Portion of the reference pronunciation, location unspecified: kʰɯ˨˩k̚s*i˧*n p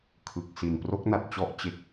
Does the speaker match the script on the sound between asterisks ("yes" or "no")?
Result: no